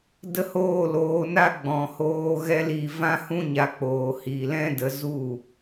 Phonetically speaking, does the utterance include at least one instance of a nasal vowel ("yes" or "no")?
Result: yes